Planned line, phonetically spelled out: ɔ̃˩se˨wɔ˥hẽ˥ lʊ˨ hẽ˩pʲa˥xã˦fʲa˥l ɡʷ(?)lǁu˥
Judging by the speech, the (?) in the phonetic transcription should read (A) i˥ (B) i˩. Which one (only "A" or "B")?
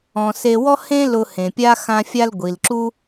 B